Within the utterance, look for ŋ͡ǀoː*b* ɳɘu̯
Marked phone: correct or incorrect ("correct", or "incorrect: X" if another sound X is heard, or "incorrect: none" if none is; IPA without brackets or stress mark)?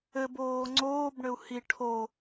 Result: correct